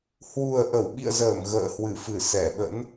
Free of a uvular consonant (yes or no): yes